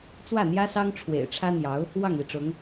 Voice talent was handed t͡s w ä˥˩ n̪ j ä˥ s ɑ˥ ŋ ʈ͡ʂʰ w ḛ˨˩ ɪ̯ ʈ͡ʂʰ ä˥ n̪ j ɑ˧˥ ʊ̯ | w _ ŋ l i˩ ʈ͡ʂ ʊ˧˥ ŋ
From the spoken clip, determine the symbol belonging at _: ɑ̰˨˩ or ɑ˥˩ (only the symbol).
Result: ɑ˥˩